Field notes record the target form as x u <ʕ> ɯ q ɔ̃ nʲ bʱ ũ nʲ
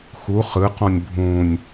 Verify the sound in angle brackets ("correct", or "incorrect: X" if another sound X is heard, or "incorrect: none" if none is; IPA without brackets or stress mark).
incorrect: χ